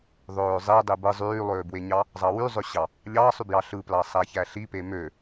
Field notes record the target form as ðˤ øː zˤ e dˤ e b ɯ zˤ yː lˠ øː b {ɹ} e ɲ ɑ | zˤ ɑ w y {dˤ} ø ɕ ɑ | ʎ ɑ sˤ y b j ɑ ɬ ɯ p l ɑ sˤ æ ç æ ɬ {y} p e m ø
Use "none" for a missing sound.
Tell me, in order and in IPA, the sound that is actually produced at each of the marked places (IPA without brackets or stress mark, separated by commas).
w, zˤ, i